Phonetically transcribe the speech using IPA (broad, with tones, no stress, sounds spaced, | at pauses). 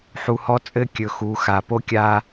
ħ u˨ h ɔ˦ t͡sʼ ɘ˦ kʲ ɵ˨ x u˨˦ x a˨ p o˦ kʲ a˦